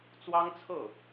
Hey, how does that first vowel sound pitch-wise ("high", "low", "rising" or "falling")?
high